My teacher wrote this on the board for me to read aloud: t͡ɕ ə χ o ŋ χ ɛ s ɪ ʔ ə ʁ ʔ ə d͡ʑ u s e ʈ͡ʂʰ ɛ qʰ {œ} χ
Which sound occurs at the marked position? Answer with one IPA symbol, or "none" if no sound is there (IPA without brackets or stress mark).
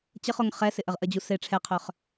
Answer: œ